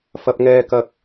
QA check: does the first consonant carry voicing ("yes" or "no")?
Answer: no